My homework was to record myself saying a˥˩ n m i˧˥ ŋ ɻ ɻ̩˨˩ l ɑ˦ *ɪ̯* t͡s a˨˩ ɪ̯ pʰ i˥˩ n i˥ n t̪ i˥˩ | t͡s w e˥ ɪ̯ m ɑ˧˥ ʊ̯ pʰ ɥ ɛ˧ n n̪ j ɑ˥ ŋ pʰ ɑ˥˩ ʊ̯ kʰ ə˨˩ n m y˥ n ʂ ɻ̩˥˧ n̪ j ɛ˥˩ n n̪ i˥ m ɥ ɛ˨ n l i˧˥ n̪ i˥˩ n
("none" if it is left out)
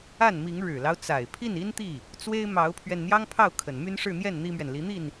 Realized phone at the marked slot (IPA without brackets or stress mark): ʊ̯